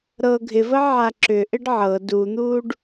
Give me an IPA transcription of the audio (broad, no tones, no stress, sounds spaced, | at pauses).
ɾ ɤ ɡʱ ɪ v ə ʕ a ǁ ʏ ʔ ɪ ɖ ʕ ɤ d u n̪ uː ɖ